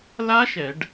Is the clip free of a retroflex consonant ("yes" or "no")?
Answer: no